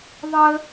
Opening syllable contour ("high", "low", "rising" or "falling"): high